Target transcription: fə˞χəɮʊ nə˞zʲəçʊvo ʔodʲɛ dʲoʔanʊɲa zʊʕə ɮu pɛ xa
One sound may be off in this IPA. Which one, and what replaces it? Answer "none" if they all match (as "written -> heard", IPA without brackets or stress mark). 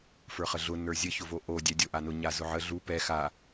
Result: none